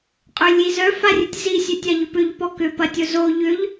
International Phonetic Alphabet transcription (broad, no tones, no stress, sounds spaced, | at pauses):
qʼ ø lʲ i z œ f a rʲ ʊ tʲ z i sʲ ø tʲ a ʎ ʏ p ʏ ʎ p ɔ k ʏ p ɐ tʲ ʊ z o ʎ ʏ ʎ